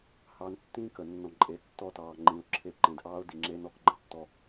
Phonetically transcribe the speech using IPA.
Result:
h ɑ˨ n tː ĩː˦ k ə˨ nː ɔ̃˨ ǃʼ e˨ tː ɔ˦ t ɑː˨ ŋ͡ǃ ĩ˨ ʊ̯ ǁʰ e˦ ǃ ẽ˨ d ʔ ɑː˦ ʊ̯ d i˨ ŋ͡ǁ e˦ n ɔ˦ k ɡ͡ǃ ə̃˦ tː ɔ˦

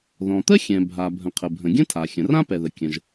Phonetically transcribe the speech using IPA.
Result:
ð ɔ̃˩ t̪ ə˥ xʲ ɛ̃˩ bʱ a˩ bʱ ə̃˩ qʰ ə˩ bʱ ə̃˩ ɡʲ ə̃˥ tʰ a˩ xʲ ə̃˩ r ã˥ p ɛ˩ ð ə˩ kʲ ə̃˩ ʒ

